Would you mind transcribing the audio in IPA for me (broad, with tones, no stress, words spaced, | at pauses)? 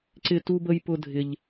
ǀɪ˥ tu˥bə˥jpʊ˥ dʱɪ˥ʎ